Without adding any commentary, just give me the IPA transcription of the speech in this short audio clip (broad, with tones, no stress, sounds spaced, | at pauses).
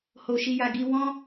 h o˧ ʃ i˧ j a˧ ɡ i˧ w ɔ̃˦